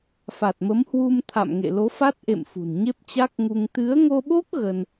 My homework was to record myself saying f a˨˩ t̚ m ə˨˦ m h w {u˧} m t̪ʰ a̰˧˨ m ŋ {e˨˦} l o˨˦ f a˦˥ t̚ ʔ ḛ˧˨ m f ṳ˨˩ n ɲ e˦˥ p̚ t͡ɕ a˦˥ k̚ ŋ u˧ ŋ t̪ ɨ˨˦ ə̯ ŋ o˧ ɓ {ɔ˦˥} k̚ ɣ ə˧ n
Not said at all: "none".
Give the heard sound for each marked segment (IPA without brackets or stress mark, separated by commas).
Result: u˧, ḛ˧˨, o˦˥